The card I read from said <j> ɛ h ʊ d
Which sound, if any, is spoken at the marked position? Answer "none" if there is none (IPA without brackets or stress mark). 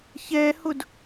ç